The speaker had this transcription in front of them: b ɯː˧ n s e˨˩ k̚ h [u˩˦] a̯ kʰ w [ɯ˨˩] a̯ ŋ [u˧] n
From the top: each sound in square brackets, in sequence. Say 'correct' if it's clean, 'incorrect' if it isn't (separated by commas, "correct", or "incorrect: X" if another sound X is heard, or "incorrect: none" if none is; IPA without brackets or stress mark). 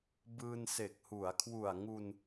correct, incorrect: u˨˩, correct